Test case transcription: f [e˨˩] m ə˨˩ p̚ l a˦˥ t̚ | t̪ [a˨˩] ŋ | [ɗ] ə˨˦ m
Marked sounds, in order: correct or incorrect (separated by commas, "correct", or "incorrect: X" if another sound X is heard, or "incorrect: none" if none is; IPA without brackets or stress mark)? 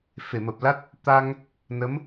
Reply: incorrect: e˧˩, incorrect: a˧, incorrect: n